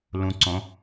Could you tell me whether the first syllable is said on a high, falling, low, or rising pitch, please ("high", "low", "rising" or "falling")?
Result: low